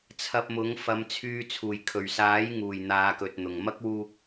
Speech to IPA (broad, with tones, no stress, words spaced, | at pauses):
t͡sʰɐ˧p̚mʊ˨˥ŋ fɐ˨˧mt͡sʰyː˧ t͡sʰuː˨˩jkʰɵ˨˩ɥsaː˨˥jŋuː˨˩j n̪aː˨˧kɵ˨t̚n̪ʊ˨˩ŋ mɐ˥k̚wuː˧k̚